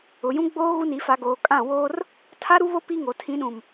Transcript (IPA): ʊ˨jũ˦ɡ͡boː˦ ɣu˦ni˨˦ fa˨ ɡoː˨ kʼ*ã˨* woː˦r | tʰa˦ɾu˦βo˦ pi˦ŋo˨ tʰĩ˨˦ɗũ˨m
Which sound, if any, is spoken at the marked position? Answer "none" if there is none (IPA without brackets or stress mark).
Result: ã˦˨